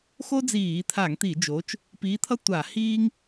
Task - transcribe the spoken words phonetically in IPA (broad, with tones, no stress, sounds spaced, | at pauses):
x o˥ d͡z iː˧˩˧ t̪ʰ a˧˩˧ ŋ t̪ i˧˩˧ d͡ʒ oː˨˥ t͡ʃ | p iː˨˥ t̪ʰ ʌ˥ tʷ a˧˩˧ h iː˥ ŋ